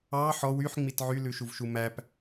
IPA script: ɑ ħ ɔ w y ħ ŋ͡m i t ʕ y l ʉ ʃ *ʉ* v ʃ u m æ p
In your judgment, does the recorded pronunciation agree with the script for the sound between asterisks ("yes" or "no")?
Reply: no